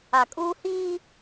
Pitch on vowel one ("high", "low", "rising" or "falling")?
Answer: low